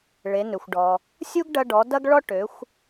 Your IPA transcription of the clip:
ɭ e˩˧ n ø˩ xʷ ɖ ɔ˩ | sʲ u˥ ɡ ɖ ɐ˧ ɖ ɔ˩˧ d ɐ˥ ɡ ɭ ɔ˥ ʈ ø˩˧ xʷ

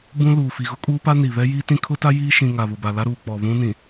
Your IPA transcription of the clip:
b ũ˦ l uː˨ f i˨ ɣ ʊ˦ kʼ uː˦ p a˦ n i˨ β ɛ˦ j iː˦ t ĩ˦ kʰ ʊ˦ t a˦ j iː˦ ʃ ĩ˨ ŋ a˨ β ʊ˨ b a˨ l a˦ ɾ uː˨ k͡p ɔ˨ β ũ˦ n ĩ˨

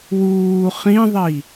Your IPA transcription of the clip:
w uː χ ĩ ðˤ i

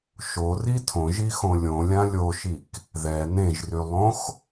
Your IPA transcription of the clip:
ʃ o r i tʰ õ ʒ i x õ lʲ õ lʲ ã lʲ o ʃ i k | ð ɛ n ẽ ʒ r y lˠ õ x

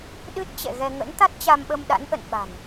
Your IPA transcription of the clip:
ɗ ɨ˦˥ t̚ t͡ɕ ɛ̰˧˨ ɣ ɛ˧ ŋ ə̰˧˥ n t̪ a˦˥ t̚ t͡ɕ a˧ m ɓ ə˧ m ɗ a̰˧˥ n ʔ ə̰˧˨ n ɓ a̤˨˩ n

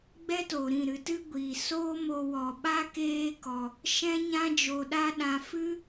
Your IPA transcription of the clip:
ɡ͡b ɛ˦ t o˨ ɾ ĩ˦˨ ɾ ɨ˧ t ɨ˦ ɡʷ iː˨ s oː˦ m o˧ w ɔ˨ ɓ a˦ k eː˦ k ɔ˧ | ʃ ɛ̃˦ ɲ ã˦ d͡ʒ o˧ ɗ a˦ ɗ ã˧ f ɨ˦

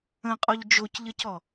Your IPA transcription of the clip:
ə̃ qʼ ɔ ʎ d͡ʒ o c ʎ ə c ɔ

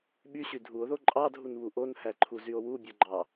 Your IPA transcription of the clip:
ɓ y ɕ y dʱ u o̯ ð o ǃʼ ɑ dʱ u n β u ʔ o n h æ ǃʰ u z y o̯ w u bʲ o ɡ͡ǃ ɑ

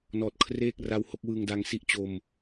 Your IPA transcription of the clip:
n ɔː˨˩ t̚ kʰ r eː˥˩ k̚ r a˧ w h o˥˩ k̚ w ɯː˧ ŋ d a˧ ŋ s i˥˩ ʔ t͡ɕ o˧ m

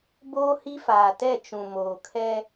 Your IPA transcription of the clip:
b oː˦ h i˦ f aː˨ t ɛ˦˨ t͡ʃ ũ˨ m oː˨ kʰ ɛ˦

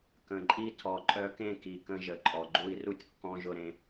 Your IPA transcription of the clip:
k ə̃˨ ǃʼ i˧ tʰ ɔ˨ ǃʼ œ˧ k ẽ˦˨ k i˨ k ə̃˧ ʒ ə˨ ǃʼ ɔ˨ ɡ͡ǃ u˧ i̯ r u˦ tʲ kː ɔ̃˧ ʒ ʊ˧ ɾ ẽ˧

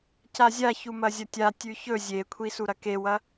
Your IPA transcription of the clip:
c a zʲ a ç u m ɐ zʲ ɐ tʲ a tʲ ʉ ç ɵ zʲ e kʷʰ i s u ɾ ɐ k e w ɐ

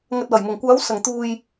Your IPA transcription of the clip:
ŋ ɐ˨ t̚ w ɐ˨˩ j m ʊ˨˩ ŋ kʷ aː˨˥ w s ɐ˨ ŋ t̪ uː˧ j

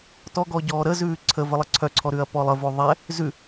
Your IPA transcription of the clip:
t ɔ ɡ ɔ ɟ ɔː ɾ ə z ʉː ǀʰ ə v ə lˠ ə ǀʰ œ ǀʰ ɔ ɾ ʉ ɐ̯ p ɔ lˠ ə v o ðˤ ɛ | z ʉ

